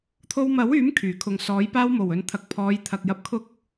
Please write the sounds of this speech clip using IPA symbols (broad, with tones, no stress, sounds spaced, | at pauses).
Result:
t̪ʰ o˧ w m ɐ˨˥ w yː˨˥ m kʰ yː˨˩ kʰ ʊ˨ ŋ s ɔː˨˥ j p aː˧ w m o˨˩ w ɵ˨ n t̪ʰ ɐ˨ k̚ pʰ ɔː˨˧ j t̪ʰ ɐ˨ k̚ j ɐ˨ p̚ kʰ ʊ˨˥ k̚